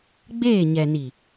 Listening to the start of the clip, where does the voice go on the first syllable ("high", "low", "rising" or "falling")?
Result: falling